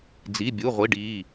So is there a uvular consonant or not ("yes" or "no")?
yes